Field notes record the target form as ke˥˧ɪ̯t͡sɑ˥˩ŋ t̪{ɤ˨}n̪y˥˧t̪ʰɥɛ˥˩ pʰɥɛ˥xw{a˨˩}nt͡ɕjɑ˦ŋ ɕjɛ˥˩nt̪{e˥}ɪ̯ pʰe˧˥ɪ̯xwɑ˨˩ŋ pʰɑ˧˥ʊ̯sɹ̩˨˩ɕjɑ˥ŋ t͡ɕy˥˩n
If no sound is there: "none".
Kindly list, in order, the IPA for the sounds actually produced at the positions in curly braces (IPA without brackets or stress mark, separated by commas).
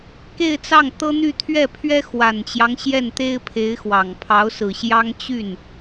ɤ˥, a˨˩, e˥